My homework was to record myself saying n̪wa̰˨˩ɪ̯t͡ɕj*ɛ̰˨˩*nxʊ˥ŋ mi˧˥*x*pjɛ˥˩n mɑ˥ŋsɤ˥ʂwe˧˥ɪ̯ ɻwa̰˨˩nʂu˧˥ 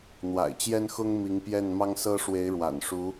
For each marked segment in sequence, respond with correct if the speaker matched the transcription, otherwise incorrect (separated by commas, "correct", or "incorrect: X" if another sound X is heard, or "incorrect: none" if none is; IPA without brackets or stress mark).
incorrect: ɛ˥, incorrect: ŋ